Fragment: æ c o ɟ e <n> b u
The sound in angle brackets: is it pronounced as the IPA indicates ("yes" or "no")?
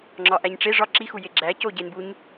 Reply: yes